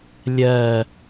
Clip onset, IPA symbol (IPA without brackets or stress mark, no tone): lʲ